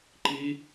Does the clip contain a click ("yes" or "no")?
yes